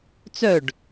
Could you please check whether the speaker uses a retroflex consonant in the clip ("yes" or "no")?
yes